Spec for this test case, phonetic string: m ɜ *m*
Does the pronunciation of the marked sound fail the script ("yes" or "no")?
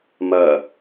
yes